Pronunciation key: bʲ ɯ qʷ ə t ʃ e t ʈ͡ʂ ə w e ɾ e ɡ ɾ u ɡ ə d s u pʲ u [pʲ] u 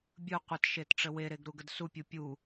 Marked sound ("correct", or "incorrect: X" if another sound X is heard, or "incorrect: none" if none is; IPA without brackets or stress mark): correct